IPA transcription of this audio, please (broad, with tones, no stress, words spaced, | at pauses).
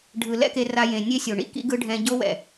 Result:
ɖʱɯ˨ lɛ̰˦ke˧ ra˧jẽ˨ nʲe˦sʲo˨ɳḭ˧ kḭ˦ɡɯ˦ ɖʱɛ̃˦ ɟo˦wɛ̰˨